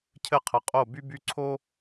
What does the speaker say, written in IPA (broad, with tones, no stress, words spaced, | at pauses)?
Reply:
cʰɘ˦ qʰə˨qʼo˦˨by˦ by˦ǀʰo˦